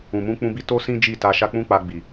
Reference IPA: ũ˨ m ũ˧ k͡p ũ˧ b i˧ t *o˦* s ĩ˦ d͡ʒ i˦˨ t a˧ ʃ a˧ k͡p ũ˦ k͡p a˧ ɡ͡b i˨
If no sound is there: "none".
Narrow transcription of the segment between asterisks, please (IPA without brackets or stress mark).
o˦